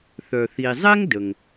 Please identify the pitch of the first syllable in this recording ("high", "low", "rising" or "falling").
low